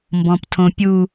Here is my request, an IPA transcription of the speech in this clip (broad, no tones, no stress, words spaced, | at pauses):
mbɔ̃ptʰõpʲu